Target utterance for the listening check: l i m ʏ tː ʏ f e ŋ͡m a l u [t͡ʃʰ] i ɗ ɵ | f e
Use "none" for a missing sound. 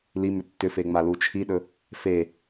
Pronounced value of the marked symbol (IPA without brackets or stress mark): t͡ʃʰ